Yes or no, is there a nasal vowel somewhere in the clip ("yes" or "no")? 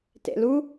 no